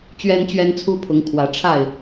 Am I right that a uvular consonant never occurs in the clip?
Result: yes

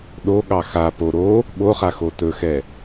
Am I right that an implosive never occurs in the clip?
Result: no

